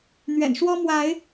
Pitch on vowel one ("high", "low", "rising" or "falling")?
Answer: low